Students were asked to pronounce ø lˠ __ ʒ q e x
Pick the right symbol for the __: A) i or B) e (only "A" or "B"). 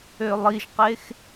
A